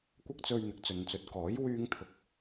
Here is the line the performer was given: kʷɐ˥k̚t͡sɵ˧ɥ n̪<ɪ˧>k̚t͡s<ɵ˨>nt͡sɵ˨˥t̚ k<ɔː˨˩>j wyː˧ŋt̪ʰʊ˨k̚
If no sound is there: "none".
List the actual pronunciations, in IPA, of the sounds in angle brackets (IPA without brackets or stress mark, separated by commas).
ɪ˨, ɵ˨, ɔː˨˥